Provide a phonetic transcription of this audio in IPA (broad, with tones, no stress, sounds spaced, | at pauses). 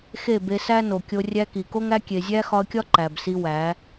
x e˦˨ b e˧ s æ˦ n o˨ kʲ o˧ rʲ æ˧ k i˨ k o˦ ŋ æ˦ kʲ e˨ zʲ æ˦ x ɒ˧ ə̯ kʲ ɒ˦ ǃ æ˨ b s i˧ w æ˨˦